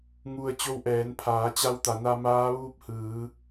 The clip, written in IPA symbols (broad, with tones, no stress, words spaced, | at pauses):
ŋu˧ə̯ t͡ɕo˧wʔɛː˩˧npʰaː˩˧t͡ɕa˧w t̪a˩˧na˧ maː˧˥ʋuː˥˨p̚hɯː˩˧